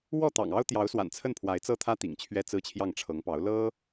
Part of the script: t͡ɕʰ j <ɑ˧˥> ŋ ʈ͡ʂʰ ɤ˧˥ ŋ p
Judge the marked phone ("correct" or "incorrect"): incorrect